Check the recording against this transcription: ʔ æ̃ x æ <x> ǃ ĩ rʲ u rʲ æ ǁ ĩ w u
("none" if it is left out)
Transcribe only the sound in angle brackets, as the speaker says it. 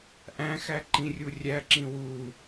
none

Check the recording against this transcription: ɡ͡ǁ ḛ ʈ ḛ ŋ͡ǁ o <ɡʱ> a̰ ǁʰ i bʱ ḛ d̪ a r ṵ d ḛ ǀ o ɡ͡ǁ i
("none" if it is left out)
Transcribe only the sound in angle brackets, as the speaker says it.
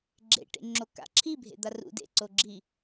k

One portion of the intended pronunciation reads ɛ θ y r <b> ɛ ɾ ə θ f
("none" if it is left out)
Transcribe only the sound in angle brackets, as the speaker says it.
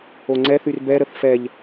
b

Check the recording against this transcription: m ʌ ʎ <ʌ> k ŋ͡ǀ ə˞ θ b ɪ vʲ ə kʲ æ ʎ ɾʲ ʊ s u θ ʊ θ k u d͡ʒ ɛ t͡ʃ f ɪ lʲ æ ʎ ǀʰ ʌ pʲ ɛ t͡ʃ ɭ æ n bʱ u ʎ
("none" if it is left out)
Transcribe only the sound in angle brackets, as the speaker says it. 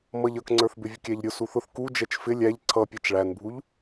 ʌ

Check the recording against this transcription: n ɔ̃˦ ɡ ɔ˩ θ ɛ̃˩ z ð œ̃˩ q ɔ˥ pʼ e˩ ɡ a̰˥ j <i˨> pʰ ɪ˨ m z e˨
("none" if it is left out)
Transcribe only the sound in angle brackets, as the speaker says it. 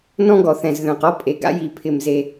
i˨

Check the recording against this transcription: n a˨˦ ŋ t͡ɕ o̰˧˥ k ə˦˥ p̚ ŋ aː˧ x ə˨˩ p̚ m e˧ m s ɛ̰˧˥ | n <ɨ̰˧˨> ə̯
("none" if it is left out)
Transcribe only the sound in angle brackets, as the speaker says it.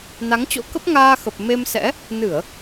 ɨ˧˩˨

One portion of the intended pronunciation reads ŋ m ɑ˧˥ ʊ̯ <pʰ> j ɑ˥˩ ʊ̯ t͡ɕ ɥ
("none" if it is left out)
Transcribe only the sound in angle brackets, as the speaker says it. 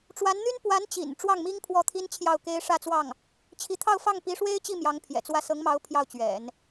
pʰ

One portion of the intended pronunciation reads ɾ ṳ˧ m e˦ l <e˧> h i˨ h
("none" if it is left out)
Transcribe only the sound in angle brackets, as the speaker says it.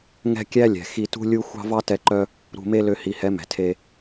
ø˧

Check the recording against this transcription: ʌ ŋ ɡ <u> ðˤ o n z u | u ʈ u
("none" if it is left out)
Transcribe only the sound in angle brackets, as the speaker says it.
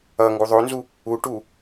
u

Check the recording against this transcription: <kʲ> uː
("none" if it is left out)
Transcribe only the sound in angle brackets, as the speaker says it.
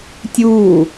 tʲ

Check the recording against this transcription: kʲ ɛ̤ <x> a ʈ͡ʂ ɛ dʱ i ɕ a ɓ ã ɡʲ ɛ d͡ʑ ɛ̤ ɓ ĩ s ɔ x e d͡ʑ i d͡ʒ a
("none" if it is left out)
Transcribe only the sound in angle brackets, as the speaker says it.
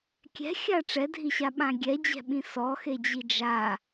xʲ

